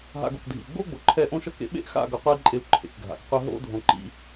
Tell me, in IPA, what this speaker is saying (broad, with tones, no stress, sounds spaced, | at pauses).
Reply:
ɦ a̰˧ ɡ o̰˨ k dʱ ḭ˨ u̯ ɡ͡b o˦ ɡ͡b o˨ ǃʰ ɛ˦˨ ʔ õ˦ ʃ ʌ˦ k ḛ˧ ɓ ḛ˦ ʔ x a̰˦˨ ɡ ʌ˧ qʷ a˦ i̯ ǃʼ e˧ u̯ ǃʰ ḛ˨ k ɡʱ a̰˨ k qʷ ɛ˦ ɦ o̰˦ dʱ õ˧ ǃ ḭ˦